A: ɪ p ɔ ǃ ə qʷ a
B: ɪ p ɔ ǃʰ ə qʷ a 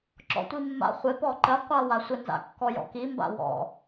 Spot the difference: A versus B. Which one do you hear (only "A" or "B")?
A